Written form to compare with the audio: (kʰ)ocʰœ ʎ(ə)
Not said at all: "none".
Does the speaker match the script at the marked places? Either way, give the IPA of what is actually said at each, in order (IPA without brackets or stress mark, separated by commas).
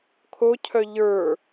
kʰ, ə˞